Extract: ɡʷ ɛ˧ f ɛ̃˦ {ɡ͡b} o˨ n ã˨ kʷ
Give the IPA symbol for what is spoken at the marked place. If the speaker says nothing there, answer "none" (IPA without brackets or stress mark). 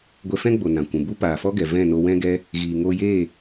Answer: ɡ͡b